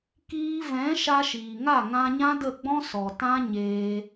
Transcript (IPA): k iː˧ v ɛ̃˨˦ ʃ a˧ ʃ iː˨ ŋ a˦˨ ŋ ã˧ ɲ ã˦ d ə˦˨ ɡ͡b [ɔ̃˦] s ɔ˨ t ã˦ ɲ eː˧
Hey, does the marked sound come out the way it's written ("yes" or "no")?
yes